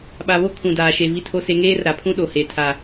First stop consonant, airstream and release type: implosive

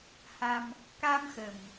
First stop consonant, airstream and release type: plain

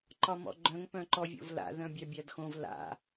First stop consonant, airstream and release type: click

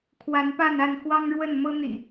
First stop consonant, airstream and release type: aspirated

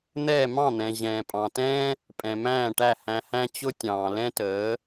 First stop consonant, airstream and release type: ejective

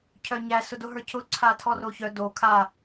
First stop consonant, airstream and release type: aspirated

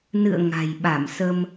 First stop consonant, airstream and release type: implosive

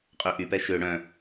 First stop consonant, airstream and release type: ejective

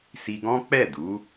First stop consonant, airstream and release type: plain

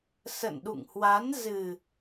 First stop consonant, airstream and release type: implosive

